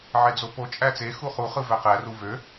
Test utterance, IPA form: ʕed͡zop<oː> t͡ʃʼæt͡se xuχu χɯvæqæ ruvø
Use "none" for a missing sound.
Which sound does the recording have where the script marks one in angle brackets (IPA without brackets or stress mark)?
o